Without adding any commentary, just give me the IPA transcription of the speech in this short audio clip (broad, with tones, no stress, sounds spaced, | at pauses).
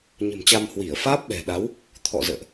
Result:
ɲ ə̤˨˩ m t͡ɕ a˧ m h w i˧˩ ə̯ f aː˦˥ p̚ ɓ ɛ̤˨˩ ɗ a˨˦ w | t̪ʰ ɔ̰˧˨ z ə̰ː˧˨ ʔ